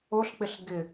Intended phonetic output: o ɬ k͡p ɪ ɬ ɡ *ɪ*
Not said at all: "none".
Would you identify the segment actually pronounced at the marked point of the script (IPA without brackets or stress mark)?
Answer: ɪ